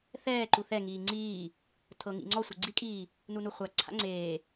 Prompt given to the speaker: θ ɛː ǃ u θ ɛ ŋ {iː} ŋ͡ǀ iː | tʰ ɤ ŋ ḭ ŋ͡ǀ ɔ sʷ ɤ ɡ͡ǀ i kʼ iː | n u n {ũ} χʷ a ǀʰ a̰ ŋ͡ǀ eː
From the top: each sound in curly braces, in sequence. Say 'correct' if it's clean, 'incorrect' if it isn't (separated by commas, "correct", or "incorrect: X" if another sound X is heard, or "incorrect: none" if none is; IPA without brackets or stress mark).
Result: correct, incorrect: u